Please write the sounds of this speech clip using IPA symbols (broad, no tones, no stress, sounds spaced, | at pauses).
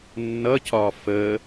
nː ʌ c ɒ f ə